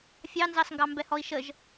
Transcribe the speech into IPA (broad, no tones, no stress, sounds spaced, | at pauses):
fʲ ɑ n z ɑ s ŋ ɡ ɑ m b ɛ h ɔ i̯ ʃ ə ʒ